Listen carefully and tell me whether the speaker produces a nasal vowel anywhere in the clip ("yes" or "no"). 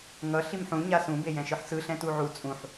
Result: yes